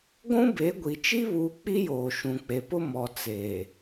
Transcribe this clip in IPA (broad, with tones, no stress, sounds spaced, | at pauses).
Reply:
ɡʷ ũ˦ b e˨˦ ɡʷ i˨ t͡ʃ i˦ β uː˦ k͡p i˦ j oː˨ ʃ ũ˨ k͡p e˨ p ʊ˦ m ɔ˨ t͡s eː˨